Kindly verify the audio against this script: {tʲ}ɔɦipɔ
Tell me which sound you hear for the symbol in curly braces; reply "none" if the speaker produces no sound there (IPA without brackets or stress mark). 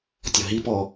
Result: tʲ